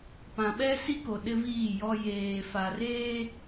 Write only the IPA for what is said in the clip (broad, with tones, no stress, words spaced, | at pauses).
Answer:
pã˨ɓɛ˦si˦ko˨ ɗɪ˦viː˦˨jɔ˦ jeː˨ fa˨reː˦